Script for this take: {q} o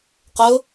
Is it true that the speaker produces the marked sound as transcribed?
yes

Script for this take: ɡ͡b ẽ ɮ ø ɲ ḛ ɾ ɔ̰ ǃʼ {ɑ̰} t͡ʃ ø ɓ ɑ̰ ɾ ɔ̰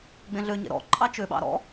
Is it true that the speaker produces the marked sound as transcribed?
no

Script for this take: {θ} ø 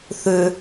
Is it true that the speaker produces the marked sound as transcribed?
yes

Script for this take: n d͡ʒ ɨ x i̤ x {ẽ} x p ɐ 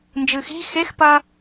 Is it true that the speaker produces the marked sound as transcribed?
no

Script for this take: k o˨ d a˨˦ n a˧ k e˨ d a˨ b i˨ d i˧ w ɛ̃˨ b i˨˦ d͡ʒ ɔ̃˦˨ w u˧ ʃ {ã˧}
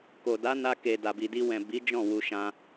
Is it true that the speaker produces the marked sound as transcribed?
yes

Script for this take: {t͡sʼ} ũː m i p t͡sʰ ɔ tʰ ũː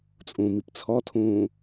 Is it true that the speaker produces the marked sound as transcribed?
yes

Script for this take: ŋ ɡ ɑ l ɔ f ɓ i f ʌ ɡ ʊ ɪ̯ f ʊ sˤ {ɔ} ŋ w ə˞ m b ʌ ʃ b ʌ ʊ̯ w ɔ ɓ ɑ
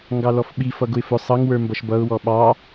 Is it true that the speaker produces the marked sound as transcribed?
no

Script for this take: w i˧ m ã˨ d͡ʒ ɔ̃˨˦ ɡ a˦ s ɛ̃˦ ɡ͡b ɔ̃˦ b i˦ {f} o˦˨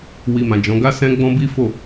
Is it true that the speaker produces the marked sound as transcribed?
yes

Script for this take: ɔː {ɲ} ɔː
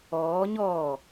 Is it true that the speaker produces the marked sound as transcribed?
yes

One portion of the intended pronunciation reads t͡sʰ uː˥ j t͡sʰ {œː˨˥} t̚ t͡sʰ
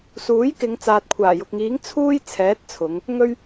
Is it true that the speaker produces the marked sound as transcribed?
no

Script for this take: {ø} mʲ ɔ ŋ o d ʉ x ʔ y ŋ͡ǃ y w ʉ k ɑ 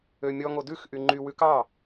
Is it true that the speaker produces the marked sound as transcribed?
yes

